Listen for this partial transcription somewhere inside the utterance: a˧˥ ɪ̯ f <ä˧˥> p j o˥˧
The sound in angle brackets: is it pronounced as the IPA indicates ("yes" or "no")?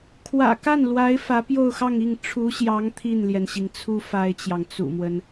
yes